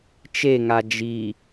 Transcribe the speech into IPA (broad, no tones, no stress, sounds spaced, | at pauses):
t͡ʃ e ŋ a d͡ʒ i